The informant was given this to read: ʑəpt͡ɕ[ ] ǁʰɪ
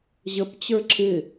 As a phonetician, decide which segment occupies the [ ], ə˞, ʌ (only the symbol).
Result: ə˞